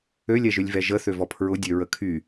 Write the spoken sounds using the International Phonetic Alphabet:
ø lʲ ɛ ʒ ø lʲ v ɛ ʒ ə θ ø v ɔ pʰ ɹ ʊ dʲ ø ɹ ə kʰ y

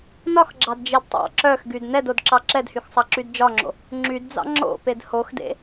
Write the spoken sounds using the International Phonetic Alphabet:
n ɒ x ɡ͡ǁ ɑ d d͡ʒ e d tˤ ɑ̰ ǁ œ x ɡ y d n ɛ d o d ǁ ɑ ǁ ɛ d h y x sˤ ɑ ǁ y d d͡ʒ ɒ ŋ͡ǁ o̰ | ŋ͡ǁ y d d͡z ɑ̰ ŋ͡ǁ o̰ p e d h o x d ḛ

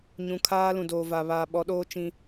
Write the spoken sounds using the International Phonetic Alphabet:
ɲ ũ˨ kʰ aː˦ l ũ˨ d oː˨ v a˨ β aː˨ ɓ ɔ˨˦ ɗ oː˦ t͡ʃ ĩ˦

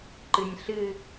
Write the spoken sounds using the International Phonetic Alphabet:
ǃ ɨ nʲ ɬ ɨ

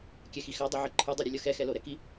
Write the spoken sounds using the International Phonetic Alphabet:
kʲ ɛ x i x a dˤ i ʕ ɯ ǃʰ ɯ dˤ u ɾʲ ɯ lʲ ʌ x ɛ x ɛ l o ɾ ɛ k i

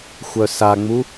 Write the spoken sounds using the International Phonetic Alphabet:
xʷ œ s a ŋ͡m u

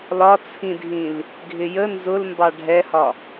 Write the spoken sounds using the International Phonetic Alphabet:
l ɒ t͡sʰ ĩ dʱ ĩ l | ɡʱ ɪ j ə n z ʊ l m b ɑ ɖʱ ɛ h ɒ

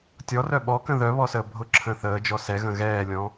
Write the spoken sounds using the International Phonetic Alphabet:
tʲ ɔ r œ ɓ ɔ k ə̃ ð œ β ɔ s əː bʱ ʊ ǁʰ ə̃ː θ əː d͡ʒ ɔ s ɛ ɣ ə̃ ɣ ɛː lʲ ɔ̃

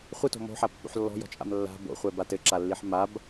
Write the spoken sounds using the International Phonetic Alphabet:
χʷ ɨ t o̤ m o̤ ħ a pː o̰ ħ lː ɔ̤ j ɔ̤ t͡ʃʼ a̰ m lː a̤ b o̰ χʷ ɛ b a t ɘ ǁ a lː i ħ m a b

